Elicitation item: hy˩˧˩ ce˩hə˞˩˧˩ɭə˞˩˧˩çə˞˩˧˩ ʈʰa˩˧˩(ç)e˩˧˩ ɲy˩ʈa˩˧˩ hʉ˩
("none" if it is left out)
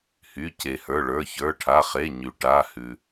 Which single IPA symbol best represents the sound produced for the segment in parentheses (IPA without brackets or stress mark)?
χ